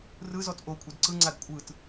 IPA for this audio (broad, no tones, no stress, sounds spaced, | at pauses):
r ɯ z ɔ t ʔ o kʷʼ ɛ d ǀ ɯ ŋ͡ǀ a d kʷʼ ɯ t